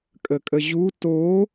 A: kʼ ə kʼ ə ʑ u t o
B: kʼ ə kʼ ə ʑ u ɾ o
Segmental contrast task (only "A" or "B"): A